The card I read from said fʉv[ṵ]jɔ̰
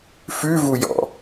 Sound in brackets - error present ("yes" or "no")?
yes